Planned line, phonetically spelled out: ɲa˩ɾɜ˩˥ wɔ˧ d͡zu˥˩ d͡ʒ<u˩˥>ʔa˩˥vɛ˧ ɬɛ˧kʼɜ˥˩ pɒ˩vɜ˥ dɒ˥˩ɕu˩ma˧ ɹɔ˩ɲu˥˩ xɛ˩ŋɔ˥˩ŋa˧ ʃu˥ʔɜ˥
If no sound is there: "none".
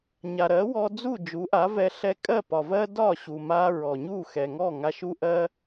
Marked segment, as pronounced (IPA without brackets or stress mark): u˩˥